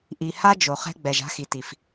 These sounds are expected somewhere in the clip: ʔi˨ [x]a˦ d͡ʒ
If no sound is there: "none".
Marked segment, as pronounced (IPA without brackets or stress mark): h